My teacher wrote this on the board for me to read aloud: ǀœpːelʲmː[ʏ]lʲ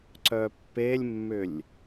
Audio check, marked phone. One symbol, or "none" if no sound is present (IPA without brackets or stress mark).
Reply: ʏ